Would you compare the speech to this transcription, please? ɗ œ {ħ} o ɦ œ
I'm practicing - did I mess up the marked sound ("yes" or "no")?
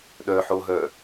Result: no